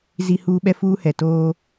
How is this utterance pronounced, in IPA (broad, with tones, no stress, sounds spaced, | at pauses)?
z i˦ h uː˦ ɓ ɛ˦ f uː˦ h ɛ˨ t oː˦